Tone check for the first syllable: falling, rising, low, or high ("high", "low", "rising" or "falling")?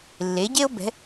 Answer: rising